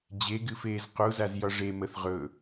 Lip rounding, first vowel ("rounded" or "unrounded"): unrounded